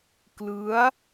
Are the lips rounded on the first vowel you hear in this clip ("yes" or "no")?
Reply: no